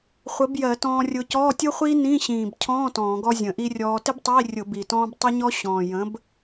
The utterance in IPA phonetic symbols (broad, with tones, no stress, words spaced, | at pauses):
χʷə˨˥bjɜ˧˩˧tɔ̃ː˧rʲʊ˧ cɔː˧˥˧tʲʊ˥χʷiː˥ nĩ˧˥˧ɕĩː˨˩bcʰɔ̃ː˧˥˧ tɔ̃ː˧˩˧ɡɔ˥zʲə̃˧˩˧ʔi˥ rʲɔː˧ tɪ˥btˤiː˧˥˧rʲʊ˧˩˧ bi˨˩tɔ̃ː˥b tˤə˥ɲɔ˥ ɕɔ̃ː˨˩jə̃˨˥b